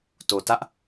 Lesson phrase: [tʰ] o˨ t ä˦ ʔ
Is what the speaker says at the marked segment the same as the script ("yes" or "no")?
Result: no